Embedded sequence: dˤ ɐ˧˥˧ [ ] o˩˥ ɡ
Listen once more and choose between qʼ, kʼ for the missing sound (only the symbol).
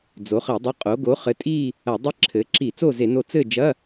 qʼ